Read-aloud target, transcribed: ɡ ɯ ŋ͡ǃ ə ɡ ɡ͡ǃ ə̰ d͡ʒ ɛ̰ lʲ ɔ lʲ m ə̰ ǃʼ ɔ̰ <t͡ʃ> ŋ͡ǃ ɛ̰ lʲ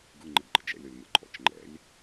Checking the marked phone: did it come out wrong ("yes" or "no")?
no